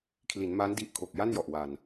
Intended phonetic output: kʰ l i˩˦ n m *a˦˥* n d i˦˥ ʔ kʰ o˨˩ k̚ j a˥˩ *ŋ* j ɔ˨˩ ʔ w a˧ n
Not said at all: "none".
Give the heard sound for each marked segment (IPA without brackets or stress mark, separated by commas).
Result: a˦˥, n